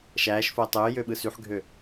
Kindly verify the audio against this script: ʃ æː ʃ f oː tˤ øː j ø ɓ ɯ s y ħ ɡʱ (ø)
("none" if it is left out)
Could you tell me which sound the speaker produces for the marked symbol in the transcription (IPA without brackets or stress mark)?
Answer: ø